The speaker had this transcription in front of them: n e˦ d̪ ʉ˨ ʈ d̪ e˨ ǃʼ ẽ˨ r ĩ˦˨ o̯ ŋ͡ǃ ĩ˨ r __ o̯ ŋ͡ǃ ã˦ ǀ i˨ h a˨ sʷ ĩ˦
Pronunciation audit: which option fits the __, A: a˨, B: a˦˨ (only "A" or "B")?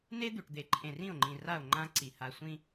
B